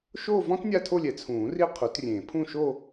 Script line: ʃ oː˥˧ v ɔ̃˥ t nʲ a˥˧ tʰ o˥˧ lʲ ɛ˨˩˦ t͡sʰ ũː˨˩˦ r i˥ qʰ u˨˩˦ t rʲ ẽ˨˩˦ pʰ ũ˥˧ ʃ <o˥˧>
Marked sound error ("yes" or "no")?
no